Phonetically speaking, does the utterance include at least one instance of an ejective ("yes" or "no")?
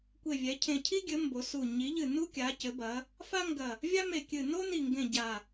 no